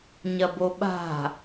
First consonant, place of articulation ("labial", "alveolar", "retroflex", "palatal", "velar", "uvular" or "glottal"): palatal